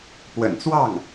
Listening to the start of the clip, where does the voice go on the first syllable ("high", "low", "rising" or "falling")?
low